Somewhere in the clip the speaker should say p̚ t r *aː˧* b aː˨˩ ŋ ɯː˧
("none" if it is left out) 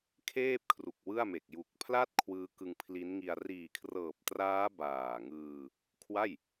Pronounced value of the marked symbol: aː˦˥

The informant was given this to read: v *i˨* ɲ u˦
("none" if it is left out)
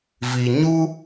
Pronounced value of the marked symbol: i˨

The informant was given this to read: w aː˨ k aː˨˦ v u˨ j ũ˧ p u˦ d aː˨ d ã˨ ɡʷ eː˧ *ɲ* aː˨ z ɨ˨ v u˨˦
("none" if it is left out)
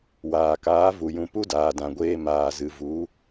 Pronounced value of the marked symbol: m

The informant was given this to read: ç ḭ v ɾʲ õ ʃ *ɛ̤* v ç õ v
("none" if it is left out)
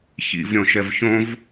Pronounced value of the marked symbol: ɛ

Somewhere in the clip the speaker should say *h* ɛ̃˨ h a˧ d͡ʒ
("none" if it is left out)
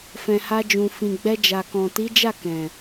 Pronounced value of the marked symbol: f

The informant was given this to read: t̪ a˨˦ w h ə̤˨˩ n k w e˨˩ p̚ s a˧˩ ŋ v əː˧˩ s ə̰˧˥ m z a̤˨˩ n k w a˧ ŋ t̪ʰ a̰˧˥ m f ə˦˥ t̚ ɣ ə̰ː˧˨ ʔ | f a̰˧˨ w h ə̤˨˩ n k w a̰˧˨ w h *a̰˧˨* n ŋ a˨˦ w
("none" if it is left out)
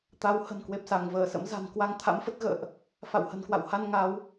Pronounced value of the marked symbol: a˧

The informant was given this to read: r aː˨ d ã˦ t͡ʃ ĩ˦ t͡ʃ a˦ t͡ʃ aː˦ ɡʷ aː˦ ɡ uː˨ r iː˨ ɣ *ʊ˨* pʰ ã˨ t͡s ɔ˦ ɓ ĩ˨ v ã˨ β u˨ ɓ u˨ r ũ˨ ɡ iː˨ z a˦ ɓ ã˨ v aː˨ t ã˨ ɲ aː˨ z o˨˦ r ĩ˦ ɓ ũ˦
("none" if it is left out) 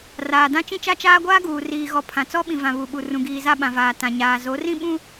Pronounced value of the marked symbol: ɔ˨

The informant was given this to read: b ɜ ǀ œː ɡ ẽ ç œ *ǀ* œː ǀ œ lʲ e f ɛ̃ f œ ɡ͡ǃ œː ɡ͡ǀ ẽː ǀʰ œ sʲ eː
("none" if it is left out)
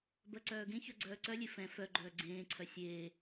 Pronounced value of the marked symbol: ɡ͡ǀ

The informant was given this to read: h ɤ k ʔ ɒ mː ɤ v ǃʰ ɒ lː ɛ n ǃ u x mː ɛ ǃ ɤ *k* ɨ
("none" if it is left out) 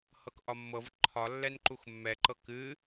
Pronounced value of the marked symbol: k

